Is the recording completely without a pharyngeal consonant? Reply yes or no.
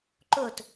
yes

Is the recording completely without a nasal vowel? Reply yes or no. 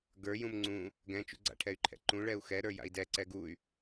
no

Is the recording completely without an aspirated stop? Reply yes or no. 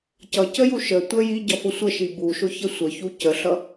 yes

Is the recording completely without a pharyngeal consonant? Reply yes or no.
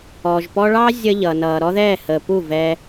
yes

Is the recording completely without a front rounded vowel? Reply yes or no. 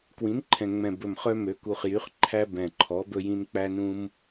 no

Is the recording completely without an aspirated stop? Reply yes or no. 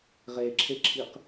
no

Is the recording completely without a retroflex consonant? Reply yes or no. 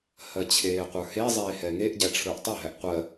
no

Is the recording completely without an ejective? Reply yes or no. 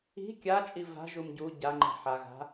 no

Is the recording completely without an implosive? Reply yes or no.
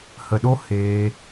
no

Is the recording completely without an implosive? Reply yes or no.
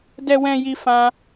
yes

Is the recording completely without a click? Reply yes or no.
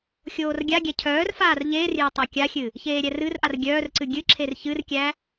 no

